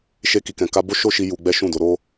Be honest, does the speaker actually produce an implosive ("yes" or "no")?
no